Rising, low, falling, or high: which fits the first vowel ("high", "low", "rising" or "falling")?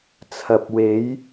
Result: low